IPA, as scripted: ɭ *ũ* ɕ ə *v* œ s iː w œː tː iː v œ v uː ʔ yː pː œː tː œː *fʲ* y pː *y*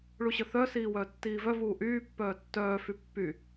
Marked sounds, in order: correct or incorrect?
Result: incorrect, incorrect, incorrect, correct

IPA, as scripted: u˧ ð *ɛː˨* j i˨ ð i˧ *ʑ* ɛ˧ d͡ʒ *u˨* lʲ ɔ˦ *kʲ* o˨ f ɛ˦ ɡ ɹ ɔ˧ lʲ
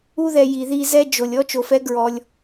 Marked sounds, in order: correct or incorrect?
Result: incorrect, incorrect, incorrect, incorrect

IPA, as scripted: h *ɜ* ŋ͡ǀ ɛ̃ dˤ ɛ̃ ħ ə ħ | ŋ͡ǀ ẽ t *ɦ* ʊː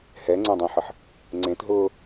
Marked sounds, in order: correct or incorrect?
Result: incorrect, correct

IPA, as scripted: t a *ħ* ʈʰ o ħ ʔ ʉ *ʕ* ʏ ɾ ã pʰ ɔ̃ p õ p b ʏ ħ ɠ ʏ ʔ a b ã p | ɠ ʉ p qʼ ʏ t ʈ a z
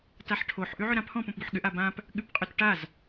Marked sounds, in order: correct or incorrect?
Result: correct, correct

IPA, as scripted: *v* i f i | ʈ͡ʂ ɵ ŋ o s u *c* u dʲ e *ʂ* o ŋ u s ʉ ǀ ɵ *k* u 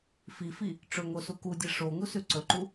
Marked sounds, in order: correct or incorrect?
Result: incorrect, incorrect, correct, incorrect

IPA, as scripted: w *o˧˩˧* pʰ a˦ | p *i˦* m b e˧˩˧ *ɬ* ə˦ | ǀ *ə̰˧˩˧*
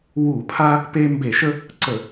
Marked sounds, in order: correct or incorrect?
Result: incorrect, incorrect, incorrect, incorrect

